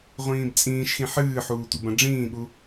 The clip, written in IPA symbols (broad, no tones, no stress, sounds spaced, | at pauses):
ʁʷ ĩː b t͡sʼ ĩː ʃ x ĩ ħ ɨː ħ uː tʷ ḭ b ɐ̃ ɖ͡ʐ ĩː ɠ u